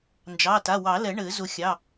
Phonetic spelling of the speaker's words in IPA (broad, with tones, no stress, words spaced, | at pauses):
nd͡ʒɑ˩˧˩ta˩˧˩wɑ˨˩˦lɛ˨˩˦ ɳɘ˨˩˦ zʊ˨˩˦xʲɑ˩˧˩